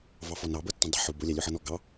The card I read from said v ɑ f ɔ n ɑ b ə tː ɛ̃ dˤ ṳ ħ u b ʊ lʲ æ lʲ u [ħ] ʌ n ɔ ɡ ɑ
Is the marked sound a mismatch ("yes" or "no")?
no